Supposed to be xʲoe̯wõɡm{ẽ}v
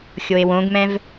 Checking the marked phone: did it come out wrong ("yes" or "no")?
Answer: yes